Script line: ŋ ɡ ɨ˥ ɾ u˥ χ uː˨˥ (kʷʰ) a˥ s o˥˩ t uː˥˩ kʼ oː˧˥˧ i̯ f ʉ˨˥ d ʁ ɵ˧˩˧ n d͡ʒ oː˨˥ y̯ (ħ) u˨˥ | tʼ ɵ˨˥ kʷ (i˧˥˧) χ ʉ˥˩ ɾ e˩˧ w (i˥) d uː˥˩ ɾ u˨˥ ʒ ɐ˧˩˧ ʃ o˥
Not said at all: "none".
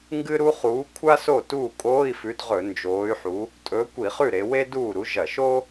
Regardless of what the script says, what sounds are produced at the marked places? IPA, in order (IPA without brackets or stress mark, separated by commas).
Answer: kʷʰ, ħ, i˧˩˧, e˥